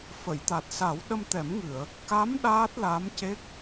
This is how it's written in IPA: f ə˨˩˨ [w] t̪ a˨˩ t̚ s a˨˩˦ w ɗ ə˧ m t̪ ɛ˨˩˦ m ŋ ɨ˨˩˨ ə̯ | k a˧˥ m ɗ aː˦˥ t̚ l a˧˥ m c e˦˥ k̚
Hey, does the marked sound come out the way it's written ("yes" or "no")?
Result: no